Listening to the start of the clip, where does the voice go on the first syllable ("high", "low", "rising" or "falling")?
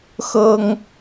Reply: high